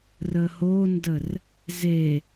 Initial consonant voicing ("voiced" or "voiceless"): voiced